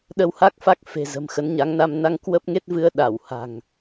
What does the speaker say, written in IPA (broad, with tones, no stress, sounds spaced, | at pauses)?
ɗ ə˧ w h a˦˥ k̚ f a˦˥ k̚ f e̤˨˩ z ə̤˨˩ m x ə˨˦ n ɲ a˨˦ ŋ n a˧ m n a˧ ŋ k w ə˦˥ p̚ ŋ e˦˥ t̚ v ɨ˧ ə̯ ɗ a˧˩ w h a̤˨˩ ŋ